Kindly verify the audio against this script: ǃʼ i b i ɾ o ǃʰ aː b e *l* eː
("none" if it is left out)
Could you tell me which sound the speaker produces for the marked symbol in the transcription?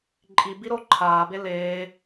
l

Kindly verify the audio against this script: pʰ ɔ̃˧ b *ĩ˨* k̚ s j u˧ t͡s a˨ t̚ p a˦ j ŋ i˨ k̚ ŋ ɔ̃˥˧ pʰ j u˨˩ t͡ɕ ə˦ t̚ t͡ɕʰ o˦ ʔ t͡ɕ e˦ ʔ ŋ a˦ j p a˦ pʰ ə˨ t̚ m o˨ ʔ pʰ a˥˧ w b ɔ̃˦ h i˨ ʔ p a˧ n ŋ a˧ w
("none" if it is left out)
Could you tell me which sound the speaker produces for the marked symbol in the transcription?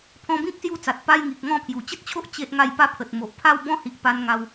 ĩ˦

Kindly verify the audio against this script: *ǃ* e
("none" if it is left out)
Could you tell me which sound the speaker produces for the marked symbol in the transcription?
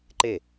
ǃ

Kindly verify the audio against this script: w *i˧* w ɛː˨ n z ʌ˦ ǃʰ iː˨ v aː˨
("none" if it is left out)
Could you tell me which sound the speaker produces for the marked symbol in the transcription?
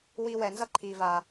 i˧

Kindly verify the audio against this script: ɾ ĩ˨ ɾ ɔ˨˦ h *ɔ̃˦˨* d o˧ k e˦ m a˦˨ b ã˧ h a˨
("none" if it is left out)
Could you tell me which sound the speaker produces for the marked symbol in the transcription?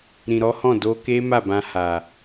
ɔ̃˦˨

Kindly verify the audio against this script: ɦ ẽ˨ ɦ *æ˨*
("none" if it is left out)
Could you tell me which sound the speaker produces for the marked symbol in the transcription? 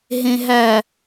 æ˨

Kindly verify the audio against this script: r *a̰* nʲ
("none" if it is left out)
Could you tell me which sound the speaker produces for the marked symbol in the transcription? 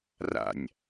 a̰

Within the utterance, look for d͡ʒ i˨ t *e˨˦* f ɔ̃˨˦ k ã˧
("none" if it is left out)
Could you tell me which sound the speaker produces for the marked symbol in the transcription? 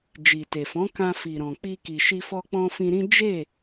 e˨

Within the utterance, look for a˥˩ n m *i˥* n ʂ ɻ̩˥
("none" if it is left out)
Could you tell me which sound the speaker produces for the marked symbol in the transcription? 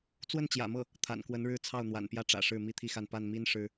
i˥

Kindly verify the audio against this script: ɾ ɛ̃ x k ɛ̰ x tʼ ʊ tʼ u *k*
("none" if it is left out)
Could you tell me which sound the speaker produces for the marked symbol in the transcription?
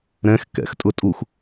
x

